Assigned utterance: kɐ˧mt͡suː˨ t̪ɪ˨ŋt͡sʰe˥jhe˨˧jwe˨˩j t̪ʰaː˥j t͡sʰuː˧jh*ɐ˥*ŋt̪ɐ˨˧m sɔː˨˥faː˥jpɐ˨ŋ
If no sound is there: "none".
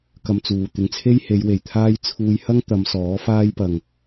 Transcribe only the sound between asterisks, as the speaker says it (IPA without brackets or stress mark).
ɐ˥